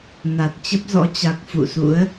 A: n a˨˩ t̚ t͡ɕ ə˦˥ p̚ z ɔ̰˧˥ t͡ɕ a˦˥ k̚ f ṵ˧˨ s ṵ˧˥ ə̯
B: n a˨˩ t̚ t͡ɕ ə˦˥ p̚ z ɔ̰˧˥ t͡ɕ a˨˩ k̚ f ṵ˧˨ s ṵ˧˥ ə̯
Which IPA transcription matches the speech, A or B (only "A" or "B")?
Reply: B